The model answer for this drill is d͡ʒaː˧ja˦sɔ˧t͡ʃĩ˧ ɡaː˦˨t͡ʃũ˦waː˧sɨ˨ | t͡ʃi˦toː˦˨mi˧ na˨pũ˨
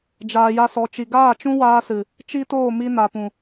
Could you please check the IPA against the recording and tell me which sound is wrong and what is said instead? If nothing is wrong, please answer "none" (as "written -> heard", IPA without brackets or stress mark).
ĩ˧ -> i˧